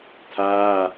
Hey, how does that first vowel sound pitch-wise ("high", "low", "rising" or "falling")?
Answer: high